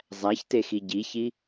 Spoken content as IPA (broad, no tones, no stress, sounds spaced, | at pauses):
zˤ æ ç t e x i ɟ i ç i